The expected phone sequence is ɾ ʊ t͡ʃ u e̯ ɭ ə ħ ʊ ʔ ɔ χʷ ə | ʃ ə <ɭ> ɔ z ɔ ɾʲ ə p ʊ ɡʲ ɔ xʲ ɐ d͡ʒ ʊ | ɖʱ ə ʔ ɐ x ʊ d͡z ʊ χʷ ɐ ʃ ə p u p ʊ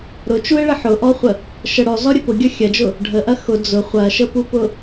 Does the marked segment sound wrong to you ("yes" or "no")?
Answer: yes